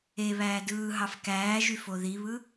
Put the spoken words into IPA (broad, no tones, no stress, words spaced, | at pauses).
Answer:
e βæːdɯːɦɑf kæːʒyf oðiβɯ